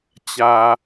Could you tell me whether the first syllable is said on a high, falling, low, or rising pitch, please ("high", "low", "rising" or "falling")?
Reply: low